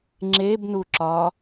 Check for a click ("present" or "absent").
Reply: present